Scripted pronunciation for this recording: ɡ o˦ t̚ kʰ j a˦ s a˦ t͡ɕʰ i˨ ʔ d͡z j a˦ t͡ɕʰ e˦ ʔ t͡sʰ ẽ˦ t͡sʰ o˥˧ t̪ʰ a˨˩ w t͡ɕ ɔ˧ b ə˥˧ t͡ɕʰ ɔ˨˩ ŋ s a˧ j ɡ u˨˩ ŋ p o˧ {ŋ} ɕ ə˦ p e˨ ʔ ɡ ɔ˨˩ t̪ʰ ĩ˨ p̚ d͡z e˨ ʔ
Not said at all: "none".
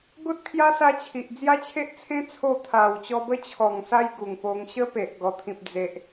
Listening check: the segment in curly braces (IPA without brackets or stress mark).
ŋ